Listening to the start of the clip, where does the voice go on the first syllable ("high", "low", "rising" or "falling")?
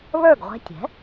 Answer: falling